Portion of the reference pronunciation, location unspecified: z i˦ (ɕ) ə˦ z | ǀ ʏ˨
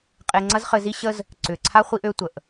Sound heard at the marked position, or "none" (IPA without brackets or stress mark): ɕ